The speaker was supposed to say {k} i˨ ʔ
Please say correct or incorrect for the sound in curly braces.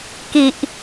correct